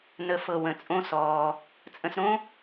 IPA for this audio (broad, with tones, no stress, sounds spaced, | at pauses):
n ə˨˦ f ɤ˨ w ə̃˨ t͡sʼ õ˦ s ɔː˧ | t͡sʼ ə̃˧ s ɾ õ˦